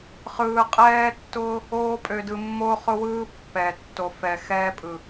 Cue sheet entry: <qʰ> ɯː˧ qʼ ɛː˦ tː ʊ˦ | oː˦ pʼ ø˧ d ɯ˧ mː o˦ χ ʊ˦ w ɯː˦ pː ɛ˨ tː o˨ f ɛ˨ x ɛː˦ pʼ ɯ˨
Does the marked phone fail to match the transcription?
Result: yes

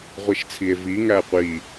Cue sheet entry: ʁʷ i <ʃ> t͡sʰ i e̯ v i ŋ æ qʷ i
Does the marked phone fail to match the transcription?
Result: no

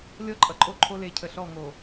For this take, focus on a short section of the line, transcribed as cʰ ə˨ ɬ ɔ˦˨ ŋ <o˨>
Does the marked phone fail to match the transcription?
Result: no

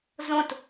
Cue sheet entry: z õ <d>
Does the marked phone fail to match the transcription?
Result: yes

